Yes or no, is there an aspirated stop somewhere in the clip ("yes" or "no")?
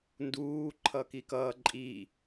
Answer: yes